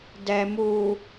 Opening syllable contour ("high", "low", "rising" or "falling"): low